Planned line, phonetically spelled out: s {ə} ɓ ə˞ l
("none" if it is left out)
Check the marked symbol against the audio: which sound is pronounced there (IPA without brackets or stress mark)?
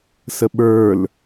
ə